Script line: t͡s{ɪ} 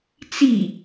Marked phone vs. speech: incorrect: i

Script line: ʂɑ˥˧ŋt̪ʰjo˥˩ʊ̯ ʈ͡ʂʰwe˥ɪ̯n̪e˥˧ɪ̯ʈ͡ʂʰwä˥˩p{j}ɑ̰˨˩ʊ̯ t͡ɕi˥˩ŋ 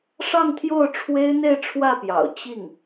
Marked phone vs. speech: correct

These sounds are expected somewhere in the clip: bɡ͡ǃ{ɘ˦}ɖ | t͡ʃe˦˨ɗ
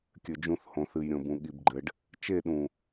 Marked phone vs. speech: incorrect: ɘ˨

